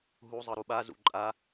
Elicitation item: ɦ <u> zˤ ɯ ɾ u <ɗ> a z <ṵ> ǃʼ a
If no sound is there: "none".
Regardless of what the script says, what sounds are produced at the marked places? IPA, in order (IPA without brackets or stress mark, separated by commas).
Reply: u, ɓ, ṵ